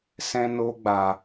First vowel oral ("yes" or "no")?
no